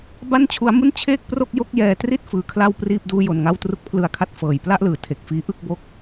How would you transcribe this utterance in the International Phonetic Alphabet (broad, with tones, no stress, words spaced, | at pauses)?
ba˥˩nt͡ɕʰu˦˥a̯mu˥˩n t͡ɕʰeː˥˩k̚pro˥˩k̚jo˥˩k̚jɛː˧ tri˥˩t̚ fɯː˧kʰla˥˩wpriː˥˩p̚ duː˥˩jo˧nŋa˥˩w tru˦˥k̚pʰlɯ˧a̯kʰa˦˥t̚ fɤː˨˩jpla˥˩ʔlɯː˨˩tʰe˨˩k̚ fiː˦˥ʔɯ˥˩k̚ bo˦˥k̚